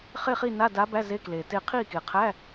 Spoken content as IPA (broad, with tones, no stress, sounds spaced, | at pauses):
χ e˥˨ χ i˥˨ n a˧˥˧ d a˧˥ b æ˧˥˧ z e˧˥˧ k l e˨˩ t e˥˨ qʰ i˥˨ k e˨˩ qʰ æ˧˥˧